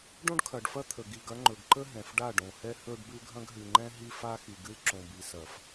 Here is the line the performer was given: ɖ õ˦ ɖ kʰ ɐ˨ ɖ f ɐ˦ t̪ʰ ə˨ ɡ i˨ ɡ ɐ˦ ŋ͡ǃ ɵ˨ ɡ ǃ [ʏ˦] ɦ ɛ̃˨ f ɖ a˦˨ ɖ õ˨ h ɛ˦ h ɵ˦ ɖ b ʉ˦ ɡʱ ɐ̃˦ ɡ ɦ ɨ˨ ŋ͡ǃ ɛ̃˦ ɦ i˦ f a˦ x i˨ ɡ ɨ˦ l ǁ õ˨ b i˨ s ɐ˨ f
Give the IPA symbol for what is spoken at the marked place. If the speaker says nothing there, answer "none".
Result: ə˦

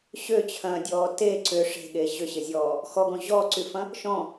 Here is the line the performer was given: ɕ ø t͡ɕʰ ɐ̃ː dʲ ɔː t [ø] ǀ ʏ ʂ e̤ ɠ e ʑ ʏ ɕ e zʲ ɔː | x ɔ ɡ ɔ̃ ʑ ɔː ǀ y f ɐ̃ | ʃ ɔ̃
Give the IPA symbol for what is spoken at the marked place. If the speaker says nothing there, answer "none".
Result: e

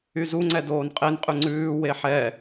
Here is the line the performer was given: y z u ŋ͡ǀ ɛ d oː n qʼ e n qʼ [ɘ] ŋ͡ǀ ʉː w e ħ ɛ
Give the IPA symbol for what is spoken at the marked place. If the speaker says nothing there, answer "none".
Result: ʉ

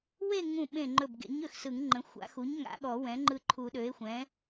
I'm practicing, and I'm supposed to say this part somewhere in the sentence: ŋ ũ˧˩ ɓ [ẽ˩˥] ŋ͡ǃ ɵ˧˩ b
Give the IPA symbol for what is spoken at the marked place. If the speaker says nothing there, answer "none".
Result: ẽ˧˩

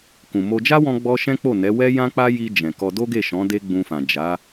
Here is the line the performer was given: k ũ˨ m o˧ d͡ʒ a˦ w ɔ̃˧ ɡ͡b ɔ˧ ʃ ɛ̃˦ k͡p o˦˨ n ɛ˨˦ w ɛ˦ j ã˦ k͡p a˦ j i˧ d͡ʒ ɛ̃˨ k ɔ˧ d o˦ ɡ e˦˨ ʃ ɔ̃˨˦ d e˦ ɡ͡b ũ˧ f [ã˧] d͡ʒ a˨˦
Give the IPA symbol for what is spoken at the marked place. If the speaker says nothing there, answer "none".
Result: ã˨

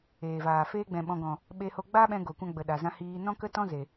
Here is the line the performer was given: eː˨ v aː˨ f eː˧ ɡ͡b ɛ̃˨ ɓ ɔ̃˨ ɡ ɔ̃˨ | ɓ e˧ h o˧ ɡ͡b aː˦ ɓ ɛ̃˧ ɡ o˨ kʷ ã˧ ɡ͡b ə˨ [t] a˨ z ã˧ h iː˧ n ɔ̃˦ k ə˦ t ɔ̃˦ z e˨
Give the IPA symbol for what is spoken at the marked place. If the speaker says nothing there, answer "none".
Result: ɗ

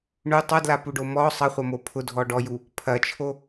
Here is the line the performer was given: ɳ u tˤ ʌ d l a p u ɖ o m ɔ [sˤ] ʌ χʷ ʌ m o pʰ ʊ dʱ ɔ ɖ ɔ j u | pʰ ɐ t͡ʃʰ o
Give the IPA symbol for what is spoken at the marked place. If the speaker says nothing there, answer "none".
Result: sˤ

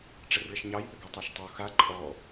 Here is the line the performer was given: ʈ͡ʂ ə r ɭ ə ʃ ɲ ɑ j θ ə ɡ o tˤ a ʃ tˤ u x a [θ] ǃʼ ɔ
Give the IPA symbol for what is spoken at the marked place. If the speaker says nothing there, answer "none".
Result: none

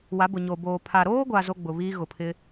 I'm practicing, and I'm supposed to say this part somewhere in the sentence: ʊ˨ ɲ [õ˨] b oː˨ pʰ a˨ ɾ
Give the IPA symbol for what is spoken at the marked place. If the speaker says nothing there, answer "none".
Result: o˨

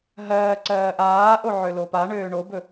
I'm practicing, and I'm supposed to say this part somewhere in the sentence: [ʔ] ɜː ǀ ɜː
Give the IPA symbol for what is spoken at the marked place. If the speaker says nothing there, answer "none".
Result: ɦ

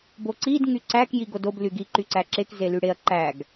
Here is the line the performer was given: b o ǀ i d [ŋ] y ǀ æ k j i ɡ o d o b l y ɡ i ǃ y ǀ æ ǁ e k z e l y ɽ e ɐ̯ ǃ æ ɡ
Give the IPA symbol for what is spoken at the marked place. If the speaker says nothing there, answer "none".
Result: ŋ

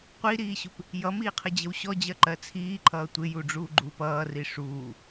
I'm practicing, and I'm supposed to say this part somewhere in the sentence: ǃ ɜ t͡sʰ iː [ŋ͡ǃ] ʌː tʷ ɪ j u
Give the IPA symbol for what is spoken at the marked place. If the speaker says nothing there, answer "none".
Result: ǃʰ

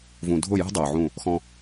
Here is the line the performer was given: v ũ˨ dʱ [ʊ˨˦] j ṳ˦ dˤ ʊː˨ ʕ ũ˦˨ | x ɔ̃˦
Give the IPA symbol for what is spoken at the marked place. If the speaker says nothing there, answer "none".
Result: ʊ˦˨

